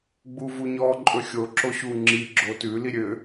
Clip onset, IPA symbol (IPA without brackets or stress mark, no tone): ɡ͡b